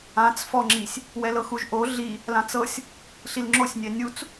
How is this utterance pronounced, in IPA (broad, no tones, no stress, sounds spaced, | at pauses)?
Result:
ã t͡s f ɔ ŋ͡ǁ i sʲ | w ɛ l ɤ x u ʒ ʔ o ɮ i | l ã t͡s ɤ sʲ | ɬ i l ŋ͡ǁ o sʲ nʲ ɛ nʲ u t͡s